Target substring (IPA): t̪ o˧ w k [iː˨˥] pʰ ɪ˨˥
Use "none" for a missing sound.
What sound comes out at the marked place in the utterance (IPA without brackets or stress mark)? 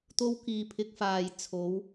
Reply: iː˨